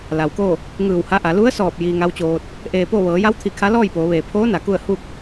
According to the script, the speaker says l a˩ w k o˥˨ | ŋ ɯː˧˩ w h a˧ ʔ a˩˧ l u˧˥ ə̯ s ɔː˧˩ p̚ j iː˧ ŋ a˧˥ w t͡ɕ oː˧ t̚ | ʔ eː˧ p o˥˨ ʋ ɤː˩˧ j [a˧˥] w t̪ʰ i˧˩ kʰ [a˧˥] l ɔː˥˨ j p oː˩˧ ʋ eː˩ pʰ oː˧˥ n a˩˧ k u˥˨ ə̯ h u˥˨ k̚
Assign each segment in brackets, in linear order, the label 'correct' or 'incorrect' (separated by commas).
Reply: correct, correct